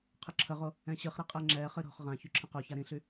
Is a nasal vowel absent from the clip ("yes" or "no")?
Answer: no